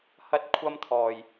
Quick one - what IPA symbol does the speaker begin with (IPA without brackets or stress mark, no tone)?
h